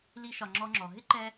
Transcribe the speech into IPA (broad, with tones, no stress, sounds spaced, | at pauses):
l i˧ ʃ ɒ˨ ŋ͡ǁ ɔ˧ ŋ͡ǁ ɔ˨ ɦ ɪ˦ ǃ ɛ˧